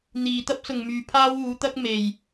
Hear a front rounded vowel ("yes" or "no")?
yes